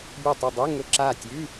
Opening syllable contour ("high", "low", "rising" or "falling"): falling